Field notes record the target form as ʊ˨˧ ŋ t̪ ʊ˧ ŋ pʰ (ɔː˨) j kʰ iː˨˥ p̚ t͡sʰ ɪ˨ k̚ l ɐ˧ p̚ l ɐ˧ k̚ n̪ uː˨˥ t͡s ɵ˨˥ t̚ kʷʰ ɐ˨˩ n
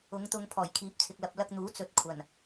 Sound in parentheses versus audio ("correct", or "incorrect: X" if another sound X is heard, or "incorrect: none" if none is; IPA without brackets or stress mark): incorrect: ɔː˨˩